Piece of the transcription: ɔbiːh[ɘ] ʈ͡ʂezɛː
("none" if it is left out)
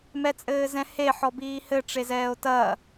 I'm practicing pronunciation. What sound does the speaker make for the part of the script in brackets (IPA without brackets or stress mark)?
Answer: ɘ